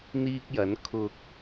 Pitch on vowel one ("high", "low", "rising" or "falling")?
high